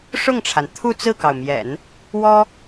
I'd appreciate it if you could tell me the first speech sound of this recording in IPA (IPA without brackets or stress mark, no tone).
ʂ